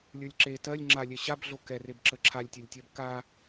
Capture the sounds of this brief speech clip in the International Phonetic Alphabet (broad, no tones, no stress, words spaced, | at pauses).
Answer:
lʲə˞lʲǁe tɜlʲ ŋ͡ǁalʲɛ ɕabɮo kɛreb ǁəǁʰalʲtʲɜlʲtʲɜb ka